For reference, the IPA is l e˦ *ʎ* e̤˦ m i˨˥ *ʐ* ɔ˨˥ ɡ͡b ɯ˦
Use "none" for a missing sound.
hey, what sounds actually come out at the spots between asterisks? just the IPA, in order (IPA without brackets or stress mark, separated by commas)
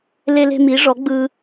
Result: l, ʐ